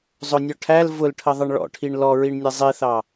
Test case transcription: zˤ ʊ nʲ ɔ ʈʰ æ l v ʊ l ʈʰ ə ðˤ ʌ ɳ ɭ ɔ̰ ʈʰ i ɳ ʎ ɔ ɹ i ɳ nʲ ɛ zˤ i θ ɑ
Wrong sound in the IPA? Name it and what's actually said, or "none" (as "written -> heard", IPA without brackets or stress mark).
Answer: ʎ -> l